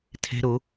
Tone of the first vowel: high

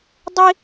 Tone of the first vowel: high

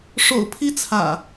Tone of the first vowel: low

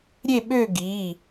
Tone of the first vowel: falling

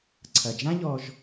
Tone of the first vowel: low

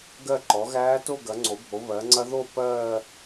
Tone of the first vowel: falling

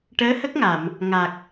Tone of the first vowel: rising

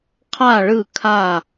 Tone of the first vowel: falling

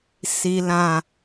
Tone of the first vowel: low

